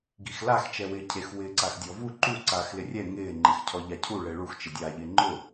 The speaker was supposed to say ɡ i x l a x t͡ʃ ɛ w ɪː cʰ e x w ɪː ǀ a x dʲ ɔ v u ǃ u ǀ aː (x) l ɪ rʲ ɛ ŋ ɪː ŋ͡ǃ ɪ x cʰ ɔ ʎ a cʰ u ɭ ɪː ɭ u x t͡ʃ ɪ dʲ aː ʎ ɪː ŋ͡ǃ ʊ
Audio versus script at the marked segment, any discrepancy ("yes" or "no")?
no